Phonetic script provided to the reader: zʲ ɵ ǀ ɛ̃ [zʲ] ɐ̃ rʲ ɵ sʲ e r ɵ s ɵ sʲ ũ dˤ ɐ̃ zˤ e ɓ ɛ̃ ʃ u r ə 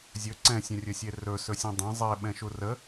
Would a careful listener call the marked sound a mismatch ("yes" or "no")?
yes